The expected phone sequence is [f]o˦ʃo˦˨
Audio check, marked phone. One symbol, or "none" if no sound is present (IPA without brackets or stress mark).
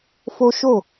f